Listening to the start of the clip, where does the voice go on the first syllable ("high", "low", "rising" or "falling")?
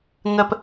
low